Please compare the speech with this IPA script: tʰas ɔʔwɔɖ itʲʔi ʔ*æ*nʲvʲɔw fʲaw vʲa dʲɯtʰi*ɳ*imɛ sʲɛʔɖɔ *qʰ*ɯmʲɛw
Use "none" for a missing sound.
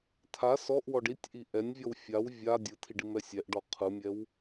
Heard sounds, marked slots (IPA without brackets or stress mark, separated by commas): ɛ, ɖ, qʰ